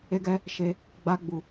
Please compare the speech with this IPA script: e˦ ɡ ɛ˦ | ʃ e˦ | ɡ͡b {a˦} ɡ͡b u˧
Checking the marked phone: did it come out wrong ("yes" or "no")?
no